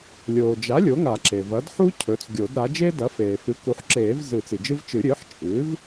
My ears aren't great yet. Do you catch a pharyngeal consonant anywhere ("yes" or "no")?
yes